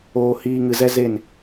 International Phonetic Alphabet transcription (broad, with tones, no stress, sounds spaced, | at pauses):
oː˧ h iː˧ ŋ ɨ˨ z ɛ˧ z e˦˨ n